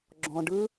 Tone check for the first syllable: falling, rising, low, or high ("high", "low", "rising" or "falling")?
low